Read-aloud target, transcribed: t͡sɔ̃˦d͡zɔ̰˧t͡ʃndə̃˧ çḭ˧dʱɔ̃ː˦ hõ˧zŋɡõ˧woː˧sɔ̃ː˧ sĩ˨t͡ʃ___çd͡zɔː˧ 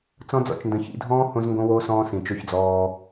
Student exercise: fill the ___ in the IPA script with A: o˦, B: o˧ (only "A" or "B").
B